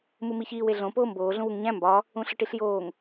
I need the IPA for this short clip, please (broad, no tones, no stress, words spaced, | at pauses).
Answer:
mumiçiːw eɮõ poːmboː ɮũwuŋɲæ̃ mbɒ | ũɬɒʈiɬjoːŋ